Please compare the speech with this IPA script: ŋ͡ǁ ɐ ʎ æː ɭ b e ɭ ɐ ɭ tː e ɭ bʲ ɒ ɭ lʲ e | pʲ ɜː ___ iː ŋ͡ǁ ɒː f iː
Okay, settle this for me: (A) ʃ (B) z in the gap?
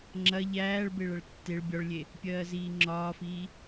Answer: B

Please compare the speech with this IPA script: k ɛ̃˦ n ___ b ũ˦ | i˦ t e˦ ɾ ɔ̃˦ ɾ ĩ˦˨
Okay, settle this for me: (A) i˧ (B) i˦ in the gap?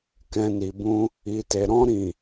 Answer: A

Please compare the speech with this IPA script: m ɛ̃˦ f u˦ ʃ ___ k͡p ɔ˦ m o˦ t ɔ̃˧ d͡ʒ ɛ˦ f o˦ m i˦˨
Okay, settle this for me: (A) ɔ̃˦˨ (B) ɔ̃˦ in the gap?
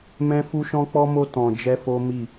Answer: B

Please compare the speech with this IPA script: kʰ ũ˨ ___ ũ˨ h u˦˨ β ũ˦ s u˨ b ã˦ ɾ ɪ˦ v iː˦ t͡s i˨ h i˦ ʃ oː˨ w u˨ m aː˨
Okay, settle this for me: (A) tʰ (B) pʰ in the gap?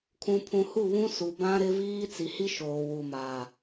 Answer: B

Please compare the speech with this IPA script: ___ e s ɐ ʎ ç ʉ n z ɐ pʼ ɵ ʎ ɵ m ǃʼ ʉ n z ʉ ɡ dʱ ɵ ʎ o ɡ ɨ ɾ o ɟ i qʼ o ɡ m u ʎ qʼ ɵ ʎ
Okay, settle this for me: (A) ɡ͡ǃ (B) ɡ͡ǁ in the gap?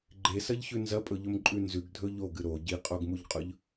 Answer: A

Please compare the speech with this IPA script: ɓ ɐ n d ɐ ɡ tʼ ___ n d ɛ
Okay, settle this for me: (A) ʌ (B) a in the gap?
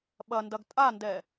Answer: B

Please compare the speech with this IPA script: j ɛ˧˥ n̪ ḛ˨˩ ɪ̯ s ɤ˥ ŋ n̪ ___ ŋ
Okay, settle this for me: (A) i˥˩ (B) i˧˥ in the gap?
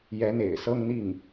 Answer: A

